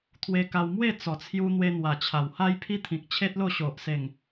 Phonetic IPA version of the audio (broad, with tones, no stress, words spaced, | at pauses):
t̪ʰwe˧ka˧wmwe˥˧ t͡sɔ˨˩t͡sʰju˧ n̪we˧n̪wa˨˩t͡ɕʰa˨˩w ha˦jpʰi˦ t̪ʰĩ˨k̚t͡ɕʰe˦t̚lo˥˧ɕo˨ʔ se˨˩ŋ